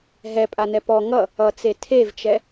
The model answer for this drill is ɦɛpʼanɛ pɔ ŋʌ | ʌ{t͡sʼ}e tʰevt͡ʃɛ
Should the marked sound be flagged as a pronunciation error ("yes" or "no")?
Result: yes